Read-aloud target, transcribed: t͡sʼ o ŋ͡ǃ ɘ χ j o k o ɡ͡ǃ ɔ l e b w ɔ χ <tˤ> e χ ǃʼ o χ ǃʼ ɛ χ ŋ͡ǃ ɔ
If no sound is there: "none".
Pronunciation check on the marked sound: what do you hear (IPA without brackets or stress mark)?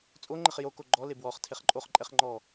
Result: tʰ